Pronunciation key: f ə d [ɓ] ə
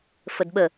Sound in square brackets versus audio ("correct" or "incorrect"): correct